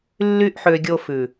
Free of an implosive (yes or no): yes